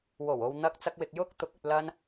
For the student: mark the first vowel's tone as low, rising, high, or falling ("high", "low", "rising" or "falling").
low